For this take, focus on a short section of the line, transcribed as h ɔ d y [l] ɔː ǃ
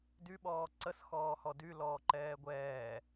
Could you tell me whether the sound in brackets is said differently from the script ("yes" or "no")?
no